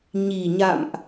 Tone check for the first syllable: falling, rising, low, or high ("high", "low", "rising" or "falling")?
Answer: low